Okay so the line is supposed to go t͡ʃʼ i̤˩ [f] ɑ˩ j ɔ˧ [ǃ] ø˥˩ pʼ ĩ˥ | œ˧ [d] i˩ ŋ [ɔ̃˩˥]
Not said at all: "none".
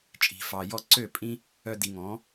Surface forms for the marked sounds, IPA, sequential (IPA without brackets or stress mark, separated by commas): f, ǀ, d, ɔ̃˩˥